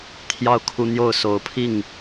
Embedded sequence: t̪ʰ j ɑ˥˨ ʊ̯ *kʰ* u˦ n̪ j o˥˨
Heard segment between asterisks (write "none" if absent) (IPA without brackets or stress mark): kʰ